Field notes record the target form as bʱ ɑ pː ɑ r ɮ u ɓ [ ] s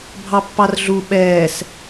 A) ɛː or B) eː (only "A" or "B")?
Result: A